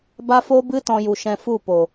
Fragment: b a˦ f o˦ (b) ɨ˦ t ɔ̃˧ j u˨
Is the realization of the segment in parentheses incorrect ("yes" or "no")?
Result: no